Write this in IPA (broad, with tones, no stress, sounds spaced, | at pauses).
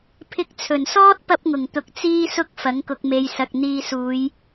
pʰ ɪ˧ k̚ t͡sʰ ɵ˨˩ n s ɔː˥ t̚ p ɐ˥ p̚ ŋ ʊ˨˩ ŋ t̪ ʊ˧ k̚ t͡s iː˥ s ʊ˥ k̚ f ɐ˨˥ ŋ k ʊ˧ k̚ m e˧ j s ɐ˨ k̚ n̪ iː˧ s uː˨˧ j